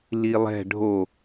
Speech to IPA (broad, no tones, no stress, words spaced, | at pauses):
lilˠɛ̤ ɖʱo